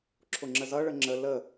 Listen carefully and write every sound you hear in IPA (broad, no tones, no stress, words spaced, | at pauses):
ǁʰʊŋ͡ǁəzʌ ɭəŋ͡ǁə lə